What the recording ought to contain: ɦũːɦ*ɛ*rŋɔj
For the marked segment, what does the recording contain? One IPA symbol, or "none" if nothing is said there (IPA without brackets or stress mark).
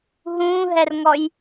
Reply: ɛ